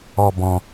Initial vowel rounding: rounded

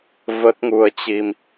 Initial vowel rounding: unrounded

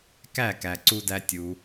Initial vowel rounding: unrounded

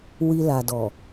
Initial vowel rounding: unrounded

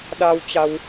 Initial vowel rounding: unrounded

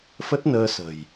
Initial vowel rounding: unrounded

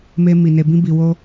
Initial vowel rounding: unrounded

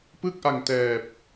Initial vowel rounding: unrounded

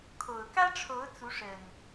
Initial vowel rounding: rounded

